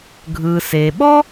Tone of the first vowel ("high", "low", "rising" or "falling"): low